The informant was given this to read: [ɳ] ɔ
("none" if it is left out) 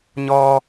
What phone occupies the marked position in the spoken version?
ɲ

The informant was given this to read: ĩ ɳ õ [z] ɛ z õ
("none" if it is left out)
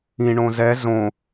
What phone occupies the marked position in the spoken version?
z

